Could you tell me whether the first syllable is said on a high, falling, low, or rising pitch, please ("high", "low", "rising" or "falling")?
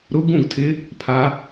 rising